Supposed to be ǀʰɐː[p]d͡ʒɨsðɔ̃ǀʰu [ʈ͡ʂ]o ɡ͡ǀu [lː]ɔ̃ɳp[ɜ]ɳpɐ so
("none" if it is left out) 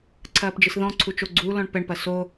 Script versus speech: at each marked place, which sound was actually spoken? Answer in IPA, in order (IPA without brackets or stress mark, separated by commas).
p, t͡ʃ, l, ɛ